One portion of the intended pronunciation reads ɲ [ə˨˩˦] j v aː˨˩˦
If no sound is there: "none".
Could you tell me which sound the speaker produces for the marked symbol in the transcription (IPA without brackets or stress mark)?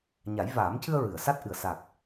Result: a˨˩˦